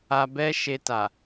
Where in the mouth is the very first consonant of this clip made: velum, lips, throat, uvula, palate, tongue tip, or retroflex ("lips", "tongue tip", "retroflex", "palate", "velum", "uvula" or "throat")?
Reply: lips